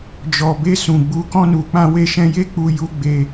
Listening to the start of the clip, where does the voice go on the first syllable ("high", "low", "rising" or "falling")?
low